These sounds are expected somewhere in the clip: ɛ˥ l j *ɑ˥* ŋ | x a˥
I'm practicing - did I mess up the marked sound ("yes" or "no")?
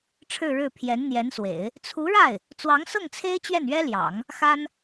yes